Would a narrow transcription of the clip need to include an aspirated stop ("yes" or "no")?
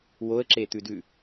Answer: no